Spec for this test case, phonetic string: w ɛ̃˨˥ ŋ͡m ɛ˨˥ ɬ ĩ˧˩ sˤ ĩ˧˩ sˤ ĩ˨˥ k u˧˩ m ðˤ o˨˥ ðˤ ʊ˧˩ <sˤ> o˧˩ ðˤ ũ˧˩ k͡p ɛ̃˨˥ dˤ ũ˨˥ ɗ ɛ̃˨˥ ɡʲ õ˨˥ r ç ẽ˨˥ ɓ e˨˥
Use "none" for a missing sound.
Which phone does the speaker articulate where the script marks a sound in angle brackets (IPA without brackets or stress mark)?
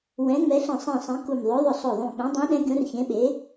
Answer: sˤ